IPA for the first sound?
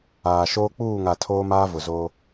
aː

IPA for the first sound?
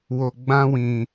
w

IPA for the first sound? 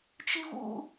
t͡ʃ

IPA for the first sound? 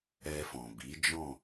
ɛ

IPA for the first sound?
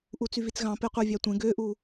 ʔ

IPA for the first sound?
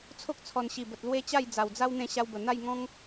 t͡sʰ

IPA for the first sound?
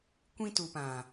kʷ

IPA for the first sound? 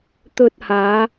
t̪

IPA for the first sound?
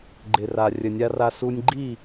ɡ͡ǃ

